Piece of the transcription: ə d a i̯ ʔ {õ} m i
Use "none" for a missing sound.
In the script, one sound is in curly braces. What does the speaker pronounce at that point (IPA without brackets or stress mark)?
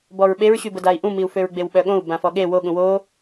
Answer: ũ